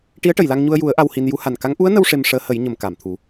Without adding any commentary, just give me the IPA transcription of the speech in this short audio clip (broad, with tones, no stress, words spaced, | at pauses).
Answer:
ʈi˧˥ə̯ʈə˨˩˨jla˧ŋɲu˧ə̯ ju˨˩˦ə̯ ʔa˧whi˧n ju˧˥ha˨˩n ka˧˥ŋ ʔu˧˥ə̯nə˧w ʂe˧mʂəː˧˥hə˨˩˦j ɲə˨˩˨m ka˨˩˨mt̪ʰu˨˩˦